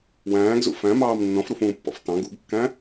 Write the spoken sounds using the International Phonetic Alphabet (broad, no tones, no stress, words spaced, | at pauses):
wæ̃ːɡzṵ fæ̃mɑːm nːɔ̃fɾufũːpːɔ̰f tɑ̃ ɡṵɡkːæ̃